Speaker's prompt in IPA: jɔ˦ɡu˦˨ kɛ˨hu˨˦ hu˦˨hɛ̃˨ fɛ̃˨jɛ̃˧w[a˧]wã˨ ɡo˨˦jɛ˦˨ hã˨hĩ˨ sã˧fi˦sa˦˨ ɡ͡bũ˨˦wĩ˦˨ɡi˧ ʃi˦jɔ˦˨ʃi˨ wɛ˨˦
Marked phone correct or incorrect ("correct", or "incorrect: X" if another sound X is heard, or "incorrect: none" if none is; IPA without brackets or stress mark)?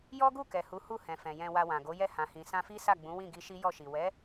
correct